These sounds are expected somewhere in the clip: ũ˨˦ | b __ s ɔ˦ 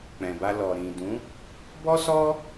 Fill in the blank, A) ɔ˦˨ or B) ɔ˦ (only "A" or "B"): B